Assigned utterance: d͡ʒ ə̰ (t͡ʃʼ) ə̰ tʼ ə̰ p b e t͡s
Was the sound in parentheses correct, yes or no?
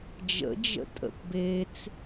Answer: no